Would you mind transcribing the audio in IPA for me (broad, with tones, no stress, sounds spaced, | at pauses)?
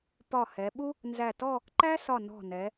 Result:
p ɒ˧˩ h ɛ˩˧ ɓ u˥ | n z æ˧˩ t ɔ˥˧ | ǃ æ˥ s ɒ˧˩ n ɔ̤˧˩ n ɛ˩˧